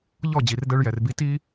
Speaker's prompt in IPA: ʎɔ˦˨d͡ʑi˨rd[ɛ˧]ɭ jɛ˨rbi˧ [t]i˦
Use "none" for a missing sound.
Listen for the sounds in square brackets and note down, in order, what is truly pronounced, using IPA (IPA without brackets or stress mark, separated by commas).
ɛ˧, t